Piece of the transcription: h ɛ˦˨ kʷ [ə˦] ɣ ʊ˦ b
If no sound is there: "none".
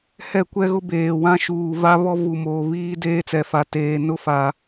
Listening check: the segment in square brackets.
ɛ˦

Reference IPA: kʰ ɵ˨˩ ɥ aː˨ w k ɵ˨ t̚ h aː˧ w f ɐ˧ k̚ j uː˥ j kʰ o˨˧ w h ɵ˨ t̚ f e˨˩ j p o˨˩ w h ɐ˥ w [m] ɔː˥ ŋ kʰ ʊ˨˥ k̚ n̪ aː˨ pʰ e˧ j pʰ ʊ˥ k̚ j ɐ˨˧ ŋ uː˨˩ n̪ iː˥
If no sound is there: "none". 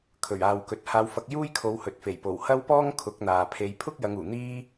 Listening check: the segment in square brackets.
p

